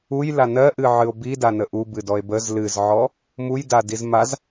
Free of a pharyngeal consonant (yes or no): no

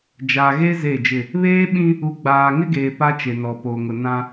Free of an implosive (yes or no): no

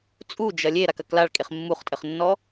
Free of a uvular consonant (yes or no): no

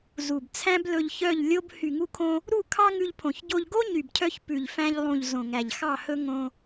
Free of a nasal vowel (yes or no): no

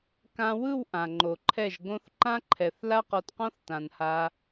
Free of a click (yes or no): no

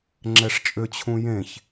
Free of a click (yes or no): no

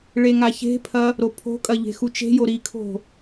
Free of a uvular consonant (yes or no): yes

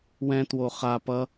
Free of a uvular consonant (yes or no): no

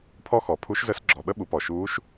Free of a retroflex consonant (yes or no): yes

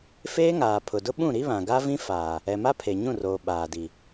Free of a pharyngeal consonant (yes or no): yes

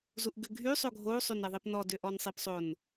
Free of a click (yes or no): yes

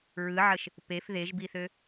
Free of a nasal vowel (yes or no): yes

